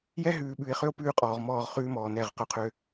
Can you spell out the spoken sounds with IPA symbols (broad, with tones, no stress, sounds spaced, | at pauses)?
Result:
j ɛ˦ ɦ ʉː˨ ɓ ʉ˨ e̯ χ ø˦ o̯ p ʉː˦ qʼ ɔː˨ ʁ m ɔː˦˨ ʁ χ ʉː˦ m ɔː˨ n ɛ˦˨ ʁ q ɵ˦ qʰ ø˦